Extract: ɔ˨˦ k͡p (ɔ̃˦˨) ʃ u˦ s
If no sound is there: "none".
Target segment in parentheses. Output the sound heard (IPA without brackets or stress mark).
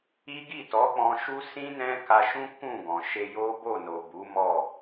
ɔ̃˧